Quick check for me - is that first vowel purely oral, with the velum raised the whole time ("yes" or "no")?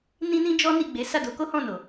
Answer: no